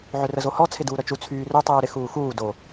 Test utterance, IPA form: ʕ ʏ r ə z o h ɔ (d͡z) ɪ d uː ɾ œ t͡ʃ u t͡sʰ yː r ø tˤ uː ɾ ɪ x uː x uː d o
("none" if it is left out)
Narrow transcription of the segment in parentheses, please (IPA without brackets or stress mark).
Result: t͡sʰ